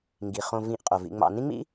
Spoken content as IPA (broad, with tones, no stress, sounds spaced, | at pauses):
ŋ ɡ i˩ χ õ˨ v ĩ˨ ʔ qʼ o˩ v ḭ˨ ŋ͡m ɑ̰˨ n ĩ˥ ŋ͡m ḭ˥